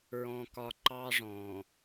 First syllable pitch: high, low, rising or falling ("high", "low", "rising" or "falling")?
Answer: high